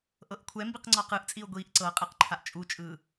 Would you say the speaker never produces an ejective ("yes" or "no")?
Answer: no